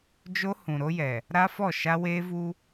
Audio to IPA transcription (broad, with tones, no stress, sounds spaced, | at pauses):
d͡ʒ o˦ h ũ˨ ɾ o˦ j ɛ˨ | ɾ a˦ f ɔ˦˨ ʃ a˦ w eː˦ v u˦